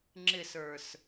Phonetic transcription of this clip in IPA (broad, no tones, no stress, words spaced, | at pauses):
ŋ͡ǁɪsə˞s